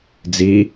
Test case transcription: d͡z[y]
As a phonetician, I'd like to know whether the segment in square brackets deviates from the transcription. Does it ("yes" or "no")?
yes